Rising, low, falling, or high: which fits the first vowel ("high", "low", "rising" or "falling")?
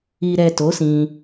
low